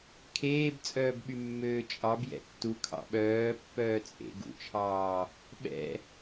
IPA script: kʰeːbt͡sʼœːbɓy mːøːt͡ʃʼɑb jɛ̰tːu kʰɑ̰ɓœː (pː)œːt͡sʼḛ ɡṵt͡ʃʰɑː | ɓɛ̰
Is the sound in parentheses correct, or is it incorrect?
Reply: correct